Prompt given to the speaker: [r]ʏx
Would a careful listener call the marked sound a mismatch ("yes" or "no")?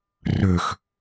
no